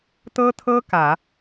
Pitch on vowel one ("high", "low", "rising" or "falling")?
high